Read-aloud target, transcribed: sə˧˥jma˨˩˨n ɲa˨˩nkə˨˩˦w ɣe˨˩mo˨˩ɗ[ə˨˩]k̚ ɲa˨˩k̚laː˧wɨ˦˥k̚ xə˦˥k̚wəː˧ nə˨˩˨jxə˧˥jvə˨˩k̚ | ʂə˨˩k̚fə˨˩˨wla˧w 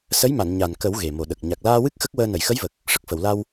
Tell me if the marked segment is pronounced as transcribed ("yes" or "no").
yes